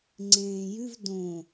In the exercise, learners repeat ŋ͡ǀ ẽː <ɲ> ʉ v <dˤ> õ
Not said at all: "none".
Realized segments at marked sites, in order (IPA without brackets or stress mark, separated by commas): j, d